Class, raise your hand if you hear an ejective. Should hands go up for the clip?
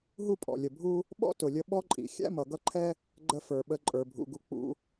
yes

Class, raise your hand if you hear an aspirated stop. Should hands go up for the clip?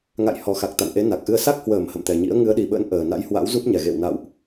no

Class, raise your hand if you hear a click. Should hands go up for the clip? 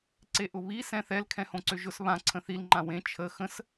yes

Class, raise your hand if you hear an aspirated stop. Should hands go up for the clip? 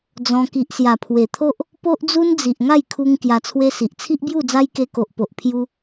yes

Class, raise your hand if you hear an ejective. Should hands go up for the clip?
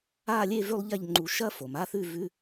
no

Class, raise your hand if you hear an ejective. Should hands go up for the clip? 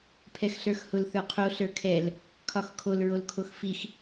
no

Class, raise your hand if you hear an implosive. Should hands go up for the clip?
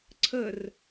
no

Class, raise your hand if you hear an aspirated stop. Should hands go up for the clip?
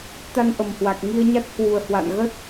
no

